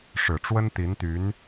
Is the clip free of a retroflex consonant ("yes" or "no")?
no